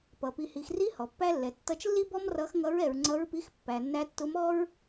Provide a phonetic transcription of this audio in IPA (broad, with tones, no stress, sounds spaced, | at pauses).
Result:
p ʌ˨ p i˨ h i˨ x r i˧˥ h ɔ˨ pː æ˥ lː ɛ˨ tː ʌ˧˥ t͡ʃ lː i˥ b ɔ˥ m r ʌ˧˥ x ŋ ʌ˧˥ ɹ ɛ˨ ɹ ŋ͡ǀ ʌ˧˥ ɹ p i˧˥ x pː æ˨ nː æ˧˥ tː ʊ˧˥ m ɔ˥ ɹ